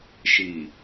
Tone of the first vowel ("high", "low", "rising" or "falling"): low